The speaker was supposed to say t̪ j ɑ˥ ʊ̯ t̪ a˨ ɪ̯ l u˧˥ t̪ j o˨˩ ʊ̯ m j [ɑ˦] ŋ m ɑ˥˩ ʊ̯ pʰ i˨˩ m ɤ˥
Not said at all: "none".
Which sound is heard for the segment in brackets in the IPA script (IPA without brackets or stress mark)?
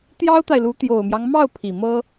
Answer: ɑ˦